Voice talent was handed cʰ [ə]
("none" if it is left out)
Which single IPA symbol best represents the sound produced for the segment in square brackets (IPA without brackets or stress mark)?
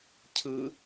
ɯ